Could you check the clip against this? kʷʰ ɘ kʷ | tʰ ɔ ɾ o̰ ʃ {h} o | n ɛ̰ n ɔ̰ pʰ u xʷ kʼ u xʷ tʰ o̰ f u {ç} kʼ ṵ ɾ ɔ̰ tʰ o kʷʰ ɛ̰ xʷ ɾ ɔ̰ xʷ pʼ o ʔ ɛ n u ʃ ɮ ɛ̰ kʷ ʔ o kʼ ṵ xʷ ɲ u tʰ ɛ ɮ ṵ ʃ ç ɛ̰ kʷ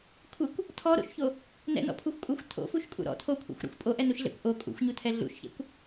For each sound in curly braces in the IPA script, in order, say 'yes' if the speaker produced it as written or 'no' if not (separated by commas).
no, no